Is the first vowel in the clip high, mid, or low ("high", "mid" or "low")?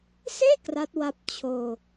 mid